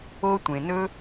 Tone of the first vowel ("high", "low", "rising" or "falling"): high